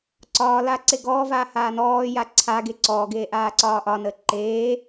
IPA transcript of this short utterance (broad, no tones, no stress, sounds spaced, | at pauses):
ǀ ɒː l aː ǀ e ɡ ɔː v aː h aː n ɔː j a ǀʰ a ɡ e ǀ ɔː ɡ eː ʔ aː ǀ ɒː ʔ ɒ n əː ǃ eː